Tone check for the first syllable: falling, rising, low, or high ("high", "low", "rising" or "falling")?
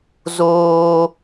high